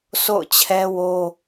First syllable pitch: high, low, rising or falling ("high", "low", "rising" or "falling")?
falling